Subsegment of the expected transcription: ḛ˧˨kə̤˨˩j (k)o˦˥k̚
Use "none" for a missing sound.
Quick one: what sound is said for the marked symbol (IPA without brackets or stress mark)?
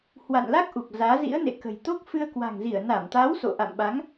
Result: t̪